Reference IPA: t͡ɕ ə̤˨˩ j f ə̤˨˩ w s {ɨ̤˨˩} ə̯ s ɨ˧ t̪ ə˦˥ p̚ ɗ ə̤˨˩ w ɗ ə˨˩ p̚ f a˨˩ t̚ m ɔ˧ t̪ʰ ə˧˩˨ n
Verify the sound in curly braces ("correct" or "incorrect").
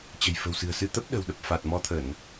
correct